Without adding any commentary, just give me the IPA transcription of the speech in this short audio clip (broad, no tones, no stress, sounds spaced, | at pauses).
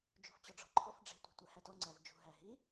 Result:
d͡ʒ ṳ f t͡ɕ ɔ ɖ͡ʐ ɔ̤ ǃʰ ɔ f ɖ͡ʐ e̤ tʷ ɛ̤ tʷ æ h æ t ɔ ŋ͡ǀ æ v d͡ʒ ṳ ɦ æ ɦ i